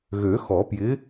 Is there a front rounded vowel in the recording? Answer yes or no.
yes